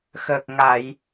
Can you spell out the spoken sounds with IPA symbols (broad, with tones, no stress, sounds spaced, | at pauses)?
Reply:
x əː˨˩ k̚ ŋ a˨˩˨ j